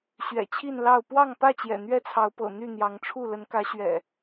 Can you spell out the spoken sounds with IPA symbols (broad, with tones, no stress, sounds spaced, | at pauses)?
ɕ ɥ ɛ̰˨˩ t͡ɕʰ i˥˨ n l ɑ˥˨ ʊ̯ p w ɑ˥˨ ŋ p ä˥˨ t͡ɕ j ɛ̰˨˩ n̪ ɥ ɛ˥˨ t͡sʰ ɑ˨˦ ʊ̯ p ɤ̰˨˩ n̪ y˥˨ n̪ j ɑ˨˦ ŋ ʈ͡ʂʰ u˥˨ l ə˨˦ n k ä˨˦ ɕ ɥ ɛ̰˨˩